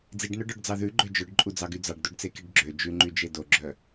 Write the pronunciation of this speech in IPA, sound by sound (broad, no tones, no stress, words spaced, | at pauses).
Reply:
d͡ziɖnœɖœɖd͡zɑ ðʉɡ͡ǃø d͡ʒœɖǃʼud͡zɑɡy d͡zɑɖdoɖt͡sekiɖ ɡ͡ǁø d͡ʒʉŋ͡ǃyd͡ʒe doɡ͡ǁœ